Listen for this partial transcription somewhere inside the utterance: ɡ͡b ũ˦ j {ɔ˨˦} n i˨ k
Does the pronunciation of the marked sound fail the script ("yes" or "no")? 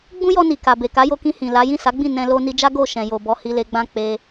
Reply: yes